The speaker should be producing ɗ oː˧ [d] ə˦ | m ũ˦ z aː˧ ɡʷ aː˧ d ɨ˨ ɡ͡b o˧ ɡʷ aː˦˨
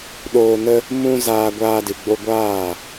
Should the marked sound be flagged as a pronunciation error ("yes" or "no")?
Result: yes